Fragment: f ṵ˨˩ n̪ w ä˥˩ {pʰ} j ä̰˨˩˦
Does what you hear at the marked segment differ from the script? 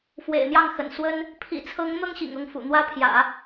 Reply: no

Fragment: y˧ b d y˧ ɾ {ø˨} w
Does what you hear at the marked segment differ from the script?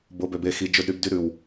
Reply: yes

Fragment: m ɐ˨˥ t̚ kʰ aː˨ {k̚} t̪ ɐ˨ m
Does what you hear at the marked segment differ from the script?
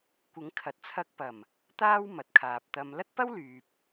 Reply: yes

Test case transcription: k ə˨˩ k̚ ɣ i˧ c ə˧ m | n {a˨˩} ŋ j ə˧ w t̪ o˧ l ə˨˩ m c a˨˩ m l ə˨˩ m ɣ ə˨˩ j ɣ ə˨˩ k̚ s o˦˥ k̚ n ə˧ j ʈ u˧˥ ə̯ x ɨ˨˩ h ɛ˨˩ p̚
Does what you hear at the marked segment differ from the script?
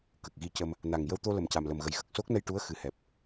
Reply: no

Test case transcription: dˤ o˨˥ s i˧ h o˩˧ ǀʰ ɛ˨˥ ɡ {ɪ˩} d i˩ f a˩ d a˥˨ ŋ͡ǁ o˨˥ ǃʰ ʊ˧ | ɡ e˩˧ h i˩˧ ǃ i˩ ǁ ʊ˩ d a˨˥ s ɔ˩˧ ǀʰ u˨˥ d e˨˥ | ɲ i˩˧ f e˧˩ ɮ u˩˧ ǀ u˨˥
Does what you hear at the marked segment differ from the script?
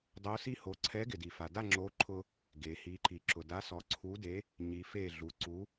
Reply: no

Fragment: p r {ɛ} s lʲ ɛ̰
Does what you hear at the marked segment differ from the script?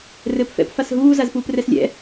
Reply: no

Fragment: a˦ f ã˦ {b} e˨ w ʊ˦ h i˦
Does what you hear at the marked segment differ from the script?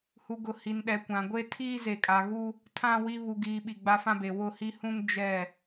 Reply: no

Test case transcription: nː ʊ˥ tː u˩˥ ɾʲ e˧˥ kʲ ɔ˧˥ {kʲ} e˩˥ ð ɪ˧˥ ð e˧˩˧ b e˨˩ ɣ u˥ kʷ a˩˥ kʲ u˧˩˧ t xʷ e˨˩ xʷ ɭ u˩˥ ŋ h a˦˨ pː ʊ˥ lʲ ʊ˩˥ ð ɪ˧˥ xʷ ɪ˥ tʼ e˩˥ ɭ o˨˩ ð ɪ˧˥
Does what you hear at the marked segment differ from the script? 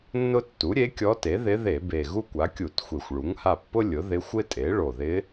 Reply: yes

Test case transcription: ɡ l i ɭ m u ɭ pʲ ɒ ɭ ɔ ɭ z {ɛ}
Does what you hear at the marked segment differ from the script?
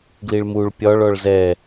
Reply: no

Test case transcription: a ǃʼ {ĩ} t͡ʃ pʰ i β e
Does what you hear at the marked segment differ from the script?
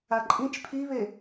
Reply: no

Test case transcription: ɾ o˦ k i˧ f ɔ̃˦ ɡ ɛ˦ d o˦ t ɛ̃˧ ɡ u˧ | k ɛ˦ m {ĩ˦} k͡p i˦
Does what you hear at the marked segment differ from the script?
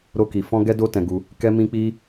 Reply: no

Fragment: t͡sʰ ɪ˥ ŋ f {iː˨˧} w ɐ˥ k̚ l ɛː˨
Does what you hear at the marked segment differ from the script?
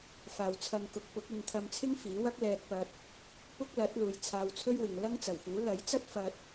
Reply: yes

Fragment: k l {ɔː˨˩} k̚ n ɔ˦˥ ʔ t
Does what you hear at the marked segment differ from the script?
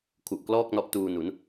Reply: yes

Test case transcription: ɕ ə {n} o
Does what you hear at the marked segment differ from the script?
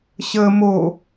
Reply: yes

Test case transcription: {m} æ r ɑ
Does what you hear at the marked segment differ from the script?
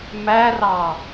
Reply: no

